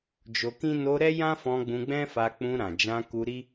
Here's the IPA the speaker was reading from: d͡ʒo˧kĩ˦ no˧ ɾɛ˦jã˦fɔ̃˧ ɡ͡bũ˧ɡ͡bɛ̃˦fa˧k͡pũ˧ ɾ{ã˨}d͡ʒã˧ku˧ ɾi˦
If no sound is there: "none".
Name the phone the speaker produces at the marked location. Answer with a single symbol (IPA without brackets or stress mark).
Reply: ã˨